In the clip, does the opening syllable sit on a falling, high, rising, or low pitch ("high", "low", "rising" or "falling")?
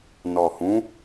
low